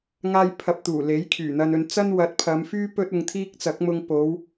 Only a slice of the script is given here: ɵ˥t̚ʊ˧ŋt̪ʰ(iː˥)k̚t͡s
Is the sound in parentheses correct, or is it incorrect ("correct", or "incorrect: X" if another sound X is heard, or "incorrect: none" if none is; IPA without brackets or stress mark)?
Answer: correct